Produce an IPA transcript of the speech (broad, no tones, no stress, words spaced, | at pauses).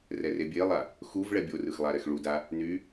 rɛrebʲelˠa | xuv ɭɛbʲorɯx lˠaɾɛxɭuda | ny